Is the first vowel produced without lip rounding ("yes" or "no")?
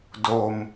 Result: no